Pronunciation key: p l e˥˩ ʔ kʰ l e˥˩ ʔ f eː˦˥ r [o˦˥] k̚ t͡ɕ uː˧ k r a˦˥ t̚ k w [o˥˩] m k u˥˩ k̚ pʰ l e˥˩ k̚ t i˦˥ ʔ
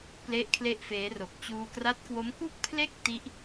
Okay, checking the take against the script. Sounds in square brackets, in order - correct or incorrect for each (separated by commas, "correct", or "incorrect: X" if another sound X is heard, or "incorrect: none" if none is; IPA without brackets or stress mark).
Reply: incorrect: o˨˩, incorrect: o˦˥